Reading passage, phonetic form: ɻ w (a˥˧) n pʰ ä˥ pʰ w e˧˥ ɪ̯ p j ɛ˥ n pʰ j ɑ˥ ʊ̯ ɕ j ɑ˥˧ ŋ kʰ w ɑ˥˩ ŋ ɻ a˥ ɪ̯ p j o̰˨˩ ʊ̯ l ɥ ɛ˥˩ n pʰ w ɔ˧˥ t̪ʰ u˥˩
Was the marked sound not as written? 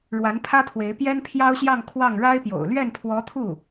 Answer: yes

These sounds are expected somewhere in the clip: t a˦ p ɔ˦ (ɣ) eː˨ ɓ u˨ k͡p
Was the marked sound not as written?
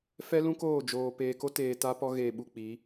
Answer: no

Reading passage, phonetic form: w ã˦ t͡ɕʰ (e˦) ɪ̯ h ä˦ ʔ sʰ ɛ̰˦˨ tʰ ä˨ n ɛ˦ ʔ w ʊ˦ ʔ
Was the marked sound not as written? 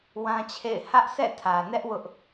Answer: yes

